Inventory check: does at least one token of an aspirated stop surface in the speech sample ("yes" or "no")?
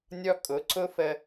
no